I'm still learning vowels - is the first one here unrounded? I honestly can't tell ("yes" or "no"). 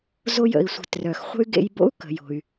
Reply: no